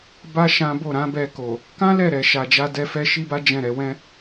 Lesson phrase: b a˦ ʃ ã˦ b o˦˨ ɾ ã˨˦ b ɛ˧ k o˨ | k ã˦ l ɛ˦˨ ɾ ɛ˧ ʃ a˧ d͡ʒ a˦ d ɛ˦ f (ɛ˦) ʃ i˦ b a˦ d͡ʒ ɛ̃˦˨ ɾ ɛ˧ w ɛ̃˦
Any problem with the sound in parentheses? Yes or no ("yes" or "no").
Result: no